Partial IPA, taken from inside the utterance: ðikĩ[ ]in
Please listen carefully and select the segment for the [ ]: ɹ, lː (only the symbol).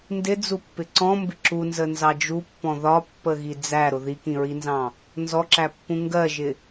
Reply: ɹ